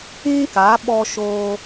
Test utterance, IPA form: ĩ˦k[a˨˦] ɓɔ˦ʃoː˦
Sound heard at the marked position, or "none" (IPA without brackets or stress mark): a˨˦